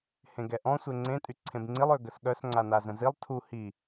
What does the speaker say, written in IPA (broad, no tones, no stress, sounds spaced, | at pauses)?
h ẽ ɡ ɛ ʔ ɔ̃ sʷ e ŋ͡ǀ ẽ tʼ y ǀʰ ẽ b ŋ͡ǀ i lˠ ø ɡ ə s ɠ œ s ŋ͡ǀ a n a z ə̃ z i lˠ tʰ u h i